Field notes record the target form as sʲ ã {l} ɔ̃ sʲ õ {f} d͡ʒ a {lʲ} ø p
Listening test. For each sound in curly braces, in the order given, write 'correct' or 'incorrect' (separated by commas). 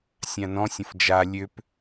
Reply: incorrect, correct, correct